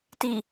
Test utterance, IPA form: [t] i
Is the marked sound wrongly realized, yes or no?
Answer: no